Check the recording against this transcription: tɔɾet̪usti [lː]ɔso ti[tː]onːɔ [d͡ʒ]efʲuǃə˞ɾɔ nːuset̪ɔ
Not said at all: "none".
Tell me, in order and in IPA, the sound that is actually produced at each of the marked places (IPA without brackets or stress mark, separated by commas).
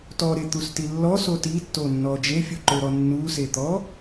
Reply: lː, tː, d͡ʒ